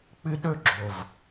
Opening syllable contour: high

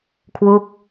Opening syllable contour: falling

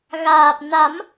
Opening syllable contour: low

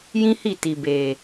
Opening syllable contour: high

